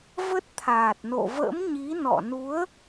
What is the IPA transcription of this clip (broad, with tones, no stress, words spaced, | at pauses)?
və˦˥t̚t̪ʰaː˨˩t̚no̰˧˨və̰ː˧˥m ɲi˨˦nɔ̰˧˨nu˨˦ə̯